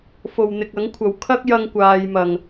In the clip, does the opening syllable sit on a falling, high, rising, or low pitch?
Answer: low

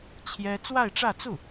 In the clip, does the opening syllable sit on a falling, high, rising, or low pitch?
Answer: high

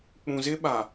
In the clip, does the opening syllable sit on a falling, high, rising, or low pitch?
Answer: low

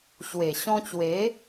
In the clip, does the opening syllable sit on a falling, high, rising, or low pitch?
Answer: low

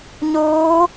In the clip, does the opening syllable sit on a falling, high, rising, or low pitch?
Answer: rising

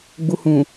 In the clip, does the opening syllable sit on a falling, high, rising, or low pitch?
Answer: low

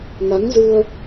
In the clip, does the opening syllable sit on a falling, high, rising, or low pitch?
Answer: rising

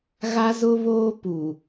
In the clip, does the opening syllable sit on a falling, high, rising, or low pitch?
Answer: high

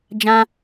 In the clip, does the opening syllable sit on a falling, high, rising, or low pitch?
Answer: high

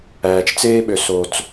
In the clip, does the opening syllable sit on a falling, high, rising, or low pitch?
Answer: low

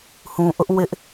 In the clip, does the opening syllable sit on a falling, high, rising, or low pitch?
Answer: low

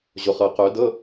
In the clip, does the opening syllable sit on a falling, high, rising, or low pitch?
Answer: low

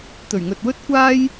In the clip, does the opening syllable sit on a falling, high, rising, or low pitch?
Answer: low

